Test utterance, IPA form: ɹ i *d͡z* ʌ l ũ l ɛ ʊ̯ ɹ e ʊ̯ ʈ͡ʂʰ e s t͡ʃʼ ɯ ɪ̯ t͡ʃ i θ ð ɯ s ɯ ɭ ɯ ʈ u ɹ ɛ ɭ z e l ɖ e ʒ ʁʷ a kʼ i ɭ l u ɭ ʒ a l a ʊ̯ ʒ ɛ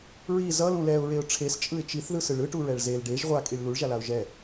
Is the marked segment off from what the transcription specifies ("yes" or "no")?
yes